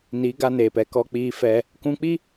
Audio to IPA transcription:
ni˨˦ɡa˧neː˨pɛ˧ kɔ˧k͡piː˧fɛ˧ | kũ˧k͡pi˦

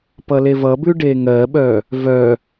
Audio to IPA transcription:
pʌlevʌbʉ ɖeŋɜɓœ | vœ

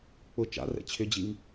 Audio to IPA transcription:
k͡pʊ t͡ʃa̰rɛ̰ t͡ɕʰʏd͡ʑiŋ

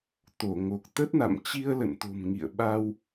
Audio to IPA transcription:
t̪o˧˩ŋo˨˩k̚t̪ə˦˥t̚na̰˧˨m t͡ɕi˧ə̯lə̰˧˨nt̪o̤˨˩m ŋḭ˧˨ə̯ɓa˧w

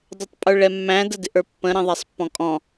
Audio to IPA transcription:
dˤɛtˤpʼə˞ɭɛmːæ̃ dədɪʔə˞pːə̃ ɾɛ̃ðˤæsˤpːɔ̃kʼɔ̃

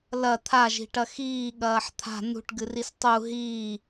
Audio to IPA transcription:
lɐ t̪ʰaʒi̤ʈɐ xiːɠɐːħ t̪ʰa̤ nṳʈɡɨris tˤu ɦiː

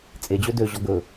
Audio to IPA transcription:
t͡sʼed͡ʑø døʑɔ ɡɵ

